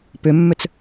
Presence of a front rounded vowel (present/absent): present